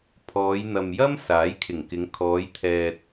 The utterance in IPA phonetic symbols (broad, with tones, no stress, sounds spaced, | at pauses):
pʰ ɔː˨˧ j n̪ ɐ˨ m j ɐ˥ m s aː˨˥ j kʰ ɪ˨˩ ŋ k ɪ˨˧ ŋ kʰ ɔː˨˧ j t̪ʰ ɛː˨ t̚